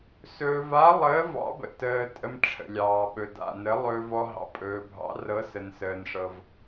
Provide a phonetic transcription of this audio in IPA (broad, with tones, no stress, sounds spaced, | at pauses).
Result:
s ɵː˧ v a˧˥ lˠ əː˧˥ v ɑ̰˧˥ b ə̰˧ t əː˧ tʼ ə˧ m ʈ͡ʂʰ ə̰˧ lʲ ɑː˧ ɓ ɵ˧ d a̰˧ n ə˧˥ lˠ ɵː˧ v ɔ˧ ɦ ɑ̰˧ pʼ ɵː˧ bʱ ɑ̰˧˥ r ɤ˧˥ s ə˧ n s əː˧ n ʂ ɤ˧ v